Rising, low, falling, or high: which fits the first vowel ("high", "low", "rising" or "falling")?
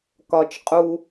low